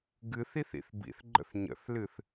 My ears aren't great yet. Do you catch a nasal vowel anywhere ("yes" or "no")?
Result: no